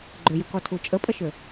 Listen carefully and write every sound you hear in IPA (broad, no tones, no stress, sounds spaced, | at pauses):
ɡ͡ǃ ʏ j u k ɔ tʰ u t͡ʃʼ ə pʼ ə ʃ ʏ